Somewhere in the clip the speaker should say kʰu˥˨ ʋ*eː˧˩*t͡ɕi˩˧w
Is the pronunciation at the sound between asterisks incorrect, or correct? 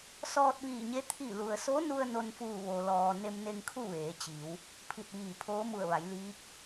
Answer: incorrect: eː˩˧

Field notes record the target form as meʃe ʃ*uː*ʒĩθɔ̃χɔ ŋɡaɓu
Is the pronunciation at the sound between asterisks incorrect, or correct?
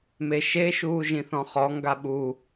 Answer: correct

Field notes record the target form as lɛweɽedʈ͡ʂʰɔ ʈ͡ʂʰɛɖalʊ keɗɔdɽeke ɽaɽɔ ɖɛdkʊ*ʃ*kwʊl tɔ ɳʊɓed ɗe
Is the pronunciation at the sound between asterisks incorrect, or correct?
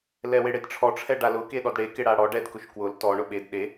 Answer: correct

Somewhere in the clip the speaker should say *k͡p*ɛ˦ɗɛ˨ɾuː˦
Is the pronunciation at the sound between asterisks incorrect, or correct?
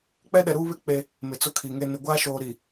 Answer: correct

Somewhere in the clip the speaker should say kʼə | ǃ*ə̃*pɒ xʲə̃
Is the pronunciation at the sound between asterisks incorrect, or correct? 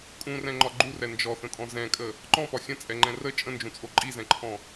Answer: incorrect: ɔ̃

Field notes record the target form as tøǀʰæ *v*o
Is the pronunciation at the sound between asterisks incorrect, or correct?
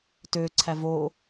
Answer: correct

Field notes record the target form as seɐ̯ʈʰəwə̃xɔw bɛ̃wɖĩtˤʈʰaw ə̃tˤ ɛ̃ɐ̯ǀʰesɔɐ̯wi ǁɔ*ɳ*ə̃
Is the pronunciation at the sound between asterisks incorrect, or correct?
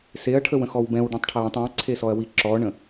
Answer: correct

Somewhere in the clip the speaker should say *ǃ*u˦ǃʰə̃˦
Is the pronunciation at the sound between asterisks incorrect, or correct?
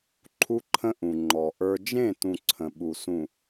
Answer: incorrect: ǃʰ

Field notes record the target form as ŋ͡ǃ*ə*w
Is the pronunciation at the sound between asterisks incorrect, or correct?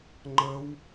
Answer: correct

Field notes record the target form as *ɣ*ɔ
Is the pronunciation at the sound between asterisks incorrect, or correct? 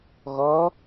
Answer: correct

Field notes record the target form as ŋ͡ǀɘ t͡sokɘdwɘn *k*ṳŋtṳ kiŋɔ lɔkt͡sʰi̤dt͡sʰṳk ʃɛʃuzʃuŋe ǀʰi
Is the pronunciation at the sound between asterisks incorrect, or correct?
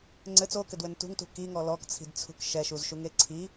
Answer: incorrect: t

